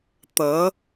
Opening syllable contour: rising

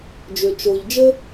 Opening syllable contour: low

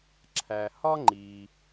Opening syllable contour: low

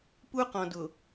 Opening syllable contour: high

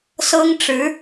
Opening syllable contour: high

